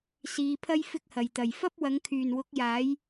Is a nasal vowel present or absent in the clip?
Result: absent